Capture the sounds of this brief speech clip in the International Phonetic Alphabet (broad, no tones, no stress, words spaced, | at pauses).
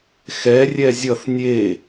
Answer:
xɛ rʲɛzʲʌθ nʲe